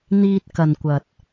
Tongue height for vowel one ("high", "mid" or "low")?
high